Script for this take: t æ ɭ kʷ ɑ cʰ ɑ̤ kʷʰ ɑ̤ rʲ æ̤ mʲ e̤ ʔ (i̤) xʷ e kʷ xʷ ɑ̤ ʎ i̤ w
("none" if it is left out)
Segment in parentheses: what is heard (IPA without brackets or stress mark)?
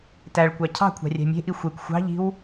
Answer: i